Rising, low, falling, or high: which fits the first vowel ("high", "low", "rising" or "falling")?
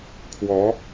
rising